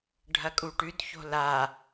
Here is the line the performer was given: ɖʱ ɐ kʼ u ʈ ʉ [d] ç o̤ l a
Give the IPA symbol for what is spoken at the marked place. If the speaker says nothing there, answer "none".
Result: d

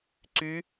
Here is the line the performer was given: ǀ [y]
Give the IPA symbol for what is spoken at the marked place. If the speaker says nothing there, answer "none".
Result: y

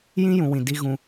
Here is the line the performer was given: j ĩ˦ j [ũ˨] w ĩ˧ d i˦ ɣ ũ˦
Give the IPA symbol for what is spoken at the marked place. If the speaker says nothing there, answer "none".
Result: ũ˦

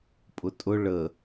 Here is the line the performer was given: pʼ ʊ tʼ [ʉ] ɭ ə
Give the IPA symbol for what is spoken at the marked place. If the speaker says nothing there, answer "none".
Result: ʊ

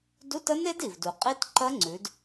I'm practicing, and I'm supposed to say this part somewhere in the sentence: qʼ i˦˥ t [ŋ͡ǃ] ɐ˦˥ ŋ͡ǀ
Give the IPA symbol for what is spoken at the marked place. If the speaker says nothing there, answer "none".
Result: ǃ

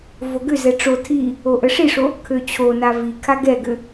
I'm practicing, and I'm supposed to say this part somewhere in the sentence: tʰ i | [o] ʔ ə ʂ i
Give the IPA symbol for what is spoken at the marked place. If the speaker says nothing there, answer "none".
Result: o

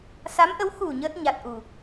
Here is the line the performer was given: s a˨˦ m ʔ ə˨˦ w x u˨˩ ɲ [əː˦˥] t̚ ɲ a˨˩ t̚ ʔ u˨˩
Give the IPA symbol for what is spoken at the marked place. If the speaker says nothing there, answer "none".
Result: əː˦˥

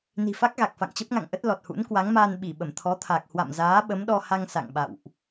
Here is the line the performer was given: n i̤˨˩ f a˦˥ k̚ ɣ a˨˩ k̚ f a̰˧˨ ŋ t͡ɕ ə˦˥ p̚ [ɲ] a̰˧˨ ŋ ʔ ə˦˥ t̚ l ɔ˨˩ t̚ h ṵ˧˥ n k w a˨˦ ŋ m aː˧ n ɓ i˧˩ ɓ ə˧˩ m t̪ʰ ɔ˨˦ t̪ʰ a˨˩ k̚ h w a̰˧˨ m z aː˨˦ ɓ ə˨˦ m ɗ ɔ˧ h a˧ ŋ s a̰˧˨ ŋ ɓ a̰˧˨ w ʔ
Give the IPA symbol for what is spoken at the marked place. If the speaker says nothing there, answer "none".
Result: ŋ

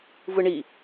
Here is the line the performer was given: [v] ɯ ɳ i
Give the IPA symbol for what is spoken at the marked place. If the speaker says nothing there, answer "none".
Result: v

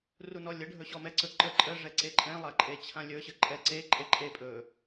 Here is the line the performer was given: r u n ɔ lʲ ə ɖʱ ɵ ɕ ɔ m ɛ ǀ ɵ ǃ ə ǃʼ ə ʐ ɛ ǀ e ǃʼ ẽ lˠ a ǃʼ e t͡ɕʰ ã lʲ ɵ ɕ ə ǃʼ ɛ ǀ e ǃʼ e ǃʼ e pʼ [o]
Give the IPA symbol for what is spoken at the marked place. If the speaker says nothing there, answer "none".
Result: ɵ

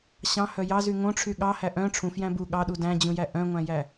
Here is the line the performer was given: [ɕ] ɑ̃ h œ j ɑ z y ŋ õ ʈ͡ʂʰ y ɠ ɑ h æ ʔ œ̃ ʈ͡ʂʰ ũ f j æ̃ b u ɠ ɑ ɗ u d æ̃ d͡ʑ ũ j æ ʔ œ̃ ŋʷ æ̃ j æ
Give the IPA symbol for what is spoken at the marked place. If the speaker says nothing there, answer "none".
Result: ɕ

